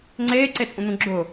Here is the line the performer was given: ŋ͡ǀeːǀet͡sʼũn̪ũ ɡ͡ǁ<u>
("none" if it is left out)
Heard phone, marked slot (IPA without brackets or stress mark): ʊ